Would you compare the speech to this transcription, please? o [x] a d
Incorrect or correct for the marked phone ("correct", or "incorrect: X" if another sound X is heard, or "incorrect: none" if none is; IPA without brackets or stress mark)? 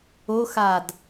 correct